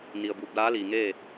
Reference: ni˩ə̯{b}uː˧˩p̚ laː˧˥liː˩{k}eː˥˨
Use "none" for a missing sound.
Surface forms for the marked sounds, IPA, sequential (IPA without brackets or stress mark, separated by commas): b, ŋ